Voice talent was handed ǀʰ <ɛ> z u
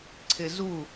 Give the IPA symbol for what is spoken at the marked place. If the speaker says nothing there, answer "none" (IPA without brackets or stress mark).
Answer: ɪ